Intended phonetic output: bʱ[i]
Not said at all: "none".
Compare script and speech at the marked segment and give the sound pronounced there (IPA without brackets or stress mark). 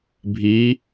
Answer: i